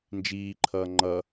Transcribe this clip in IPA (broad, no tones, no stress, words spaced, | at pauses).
nd͡ʒiːǃʰʌː ŋ͡ǃʌ